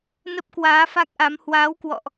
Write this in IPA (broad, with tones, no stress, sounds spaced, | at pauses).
n ə˦˥ p̚ k w aː˨˦ f a˦˥ k̚ ʔ a˨˦ m h w aː˨˦ w k w ɔ̰˧˨ ʔ